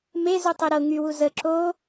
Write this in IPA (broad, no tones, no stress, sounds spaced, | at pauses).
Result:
m e z u tˤ y ɾ ɤ ŋ y w u z ə ǁ o